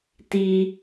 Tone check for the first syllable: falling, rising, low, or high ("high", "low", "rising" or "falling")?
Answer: high